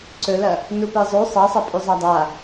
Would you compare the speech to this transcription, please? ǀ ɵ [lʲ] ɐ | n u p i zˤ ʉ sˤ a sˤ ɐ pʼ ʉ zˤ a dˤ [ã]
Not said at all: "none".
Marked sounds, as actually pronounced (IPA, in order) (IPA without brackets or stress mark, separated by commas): l, a